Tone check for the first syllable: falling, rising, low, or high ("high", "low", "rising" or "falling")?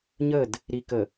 falling